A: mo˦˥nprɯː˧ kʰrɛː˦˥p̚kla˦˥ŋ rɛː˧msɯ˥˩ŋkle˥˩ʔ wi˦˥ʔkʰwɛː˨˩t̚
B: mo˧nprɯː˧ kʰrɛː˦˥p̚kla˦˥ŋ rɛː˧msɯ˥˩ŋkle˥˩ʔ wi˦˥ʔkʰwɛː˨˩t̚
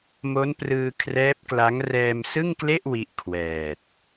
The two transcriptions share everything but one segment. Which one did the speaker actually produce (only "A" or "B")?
A